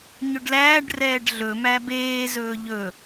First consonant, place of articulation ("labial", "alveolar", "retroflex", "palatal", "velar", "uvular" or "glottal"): palatal